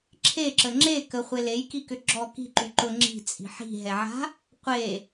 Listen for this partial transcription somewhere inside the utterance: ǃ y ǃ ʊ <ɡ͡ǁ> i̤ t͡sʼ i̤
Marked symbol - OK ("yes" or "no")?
no